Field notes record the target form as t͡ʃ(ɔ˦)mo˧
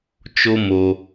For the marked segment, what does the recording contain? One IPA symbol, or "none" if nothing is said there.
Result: o˦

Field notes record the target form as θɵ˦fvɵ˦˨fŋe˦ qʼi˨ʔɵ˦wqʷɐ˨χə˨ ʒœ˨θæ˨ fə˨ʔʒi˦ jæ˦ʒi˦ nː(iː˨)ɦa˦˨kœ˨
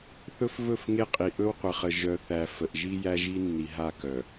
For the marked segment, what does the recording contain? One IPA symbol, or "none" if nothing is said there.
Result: i˨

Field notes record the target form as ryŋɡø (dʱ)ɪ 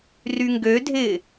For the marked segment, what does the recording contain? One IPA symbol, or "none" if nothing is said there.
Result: dʱ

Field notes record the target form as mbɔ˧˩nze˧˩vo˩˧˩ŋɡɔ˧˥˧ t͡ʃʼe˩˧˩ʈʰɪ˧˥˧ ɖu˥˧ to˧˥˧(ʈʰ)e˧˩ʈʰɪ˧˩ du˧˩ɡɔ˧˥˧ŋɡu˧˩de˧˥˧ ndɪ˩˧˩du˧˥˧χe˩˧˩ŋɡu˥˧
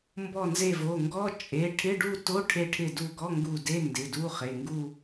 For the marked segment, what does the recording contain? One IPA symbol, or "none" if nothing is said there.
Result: ʈʰ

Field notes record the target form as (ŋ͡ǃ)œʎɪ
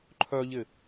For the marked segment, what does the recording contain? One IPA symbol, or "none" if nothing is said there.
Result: ǃʰ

